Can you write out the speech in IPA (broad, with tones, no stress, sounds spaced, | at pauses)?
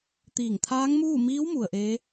t̪ iː˧˩ ŋ t̪ʰ aː˧˥ ŋ m uː˥˨ m iː˧˥ w m u˩ ə̯ ʔ eː˧˥